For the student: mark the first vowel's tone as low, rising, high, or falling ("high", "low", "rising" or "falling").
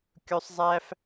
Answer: high